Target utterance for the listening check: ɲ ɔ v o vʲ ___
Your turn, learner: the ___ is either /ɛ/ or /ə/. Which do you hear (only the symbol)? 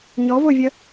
ə